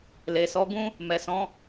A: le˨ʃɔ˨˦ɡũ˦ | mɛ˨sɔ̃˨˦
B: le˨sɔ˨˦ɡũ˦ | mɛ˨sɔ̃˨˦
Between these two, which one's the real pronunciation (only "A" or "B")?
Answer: B